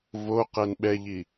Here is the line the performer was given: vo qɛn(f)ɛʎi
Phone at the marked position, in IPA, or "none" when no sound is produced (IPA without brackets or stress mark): ɓ